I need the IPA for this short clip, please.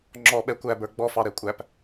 ŋ͡ǁ ɔ ɓ ɛ kʷ æ b ə˞ ɡ͡b ɔ f ɑ ɾ ɛ kʷʼ æ p

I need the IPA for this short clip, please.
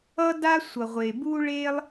ʌ˥ d a˥ sʷ ʌ˩ ʁʷ e˩ b u˥ ɭ e˥ lˠ

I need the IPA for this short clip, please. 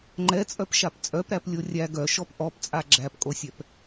ŋ͡ǃ ɛ t͡sʼ œ p ʃ a p t͡sʼ œ p ɾ æ p lʲ o rʲ æ ɡ œ ʃ ɔ p ʔ ɔ p t͡sʼ a ɡ͡ǁ æ p kʼ o sʲ ɛ p

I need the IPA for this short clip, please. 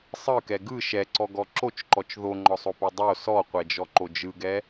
sˤ ɯ k ɛ ɡ ɯ ʃ ɛ ǀ ɔ ɡ ɔ ǁ o t͡ʃ ǃ ɔ t͡ʃ ð o ŋ͡ǃ ɔ sˤ o p o dˤ o s ɔ qʷ ɛ d͡ʒ ɔ ǃ o d͡ʒ ɯ ɡ ɛ

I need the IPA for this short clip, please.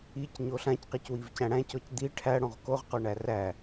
i c ɲ o ɬ ã c q i c w i v c æ̃ ɽ æ̃ c ɔ c d̪ i ʈʰ æ ɽ õ ʁ k o ʁ q o ɳ æ r æ

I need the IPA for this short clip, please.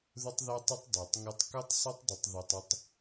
ð ʊ˦ tˤ ð ɛ˦ tˤ ɪ˦ tˤ dˤ ɛ˨ tˤ ŋ u˧ tˤ k u˦ tˤ sˤ ə˦ tˤ dˤ ə˧ tˤ ð ʊ˧ tˤ ɪ˧ tˤ

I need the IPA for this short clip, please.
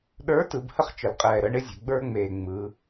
ɗ ə˞˨˥ t ɯ˩˧ b h ə˦ χ t͡ʃ ə˨˩ l qʼ ɛː˨˩ ɾ əː˨˥ ɳ ɪ˦ zʲ ɛ̤˩˧ ɡ͡b ə˞˦ ŋ͡m eː˨˩ ŋ͡m ɯ˩˧

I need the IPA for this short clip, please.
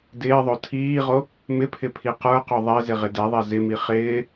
d ɪː ðˤ o tʰ iː ʁ o | m ɪ pʰ ɪ pʰ i q ə˞ q o ðˤ ɛ z ɪ ʁ ɪ d ɛ ðˤ ɛ z ɪ m i χ ɪː

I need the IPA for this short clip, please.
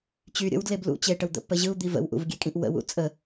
t͡ɕ y ɾʲ ə̰ w d l e b l ṵ t͡ɕ e ʈ ə w d̪ ə̰ pː ə ʑ ɯ u̯ d̪ i v ə̰ w ʔ ṵ v ɡʲ e kʼ ĩ ʔ w ə̰ w ṵ t͡sʼ ə

